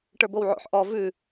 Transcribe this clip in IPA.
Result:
ʈ ə˞ b o w ʕ o̰ ħ ʔ ɔ v ʉ

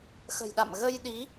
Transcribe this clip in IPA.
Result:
x ə̤˨˩ j ɗ a̰˧˨ m ɣ ə˧ j ɗ i˨˦

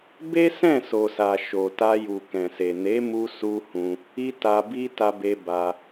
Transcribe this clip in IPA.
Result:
b e˦ s ɛ̃˦˨ s o˨ s a˨ ʃ o˨ t a˧ j u˨ k ɛ̃˨ s e˨ n e˨˦ m u˧ s u˧ h ũ˧ | i˦ t a˧ b i˦ t a˧ b e˧ b a˧

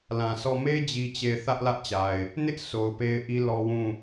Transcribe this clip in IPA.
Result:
l ã˨ s ɔ˦˨ m e˦ d͡ʑ i˦ t͡ɕ e˦˨ ɪ̯ θ ä˦ ʔ l ä˦ ʔ t͡ɕ a˨ ɪ̯ | n ɪ˦ ʔ s o˨ ʊ̯ p e˦ ɪ̯ ʔ i˦ l ɔ˦ w ũ˦˨

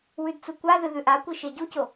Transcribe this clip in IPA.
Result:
w ʉ d t͡s u kʷ a ð ɨ ð ʉ ʔ a kʷ i ʃ e ɟ u c o

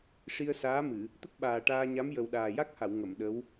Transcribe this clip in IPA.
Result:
ʂ i˧ ə̯ s aː˧˥ m ɨ˨˩˨ | t̪ ə˦˥ k̚ ɓ aː˨˩ ʈ aː˧ ɲ a˧˥ m j ə˨˩ w ɗ aː˨˩ j a˦˥ k̚ h a˨˩˨ w ŋ ə˨˩˨ m ɗ ə˧˥ w

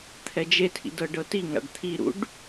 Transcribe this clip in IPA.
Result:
t̪ʰ ɛ d͡ʒ e tʰ ḭ d ɤ ɖ ɤ t i ŋ a̰ ɖ t̪ʰ i ɾ ṵ ɖ

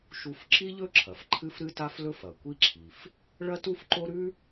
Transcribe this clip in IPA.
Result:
ʃ u˥ f ǁ i˥ ʎ ɵ˥ ǁʰ ɐ˩ f ǃʰ ɨ˥ f ɾ ɨ˥ t a˥ f l ɵ˥ f ɐ˩ kʷ i˥ ǁʰ i˩ f | ɭ ɐ˥ t u˥ f ǃ o˥ ɾ ʉ˥

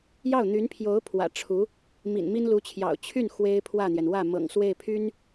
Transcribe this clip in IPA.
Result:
j ɑ˥˩ ʊ̯ n̪ y˧˥ n pʰ j o˧˥ ʊ̯ pʰ w ä̰˨˩ ʈ͡ʂʰ u˧˥ | m ḭ˨˩ n m i˥ n l u˧˥ t͡ɕʰ j ɑ̰˨˩ ʊ̯ t͡ɕʰ y˥˩ n x w e˥ ɪ̯ pʰ w ä˥˩ n̪ j ɛ˩ n w ä˥˩ m ɤ̰˨˩ ŋ s w e˥˩ ɪ̯ pʰ y˥ n

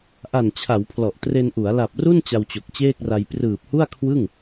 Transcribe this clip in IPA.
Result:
ʔ a˨˩ n t͡ɕʰ a˩˦ w pʰ l ɔ˨˩ ʔ t r e˧ n ʔ u˩˦ a̯ l a˨˩ p̚ r u˥˩ n t͡ɕ a˧ w t͡ɕ o˨˩ k̚ t͡ɕ eː˥˩ k̚ r a˧ j p r ɯː˨˩ p̚ h u˥˩ a̯ kʰ w ɯ˥˩ ŋ

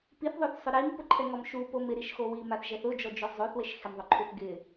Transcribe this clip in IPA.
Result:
p i θ ðˤ o θ sˤ ʊ ɾ i m p ʊ ǃʰ ɛ ŋ ɔ m ʃ u p o m ɪ ɾ i ʃ x o w i m a θ ʒ ɛ θ ʊ d͡ʒ ɔ d͡ʒ o zˤ o θ w e ʃ x ɪ m ðˤ ʊ ǃʰ u θ ɡ ɪ

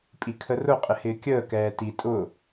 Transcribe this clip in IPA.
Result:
pʼ i kʰ ə r ʊ qʼ ɪ h ɪː kʲ əː k ɛː t i tʼ ʊ

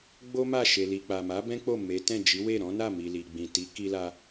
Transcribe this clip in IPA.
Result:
ɡ͡b o˦ m a˦˨ ʃ e˨ l i˨ k͡p a˨ m a˨˦ b ɛ̃˦ k͡p o˦˨ m e˨˦ t ɛ̃˦˨ d͡ʒ i˨˦ w e˦˨ ɾ ɔ̃˨˦ n a˦˨ m i˨ l i˨ ɡ͡b ĩ˨ t i˨˦ k i˧ l a˧

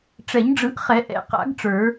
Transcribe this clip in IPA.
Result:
ʈ͡ʂ ɛ˨˩˦ ɲ ɖ͡ʐ ɯ˨˩˦ ʔ χ ɛ˨˩˦ ʔ ɛ̰˨ q a̰˨˩˦ ɡ ʈ͡ʂ ə˞˨˩˦

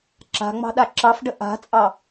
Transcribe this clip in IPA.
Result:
ǁ a̤ ŋ͡m ɑ̤ ɗ a ǁ ɑ f ɖ ə ʔ a̤ t͡sʼ ɑ

